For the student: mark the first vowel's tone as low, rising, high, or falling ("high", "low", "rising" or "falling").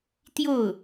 falling